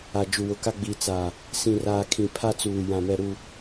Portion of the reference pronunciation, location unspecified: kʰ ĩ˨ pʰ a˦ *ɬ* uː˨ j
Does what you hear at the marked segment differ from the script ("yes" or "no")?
yes